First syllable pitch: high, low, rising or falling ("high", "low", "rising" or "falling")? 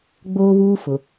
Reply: high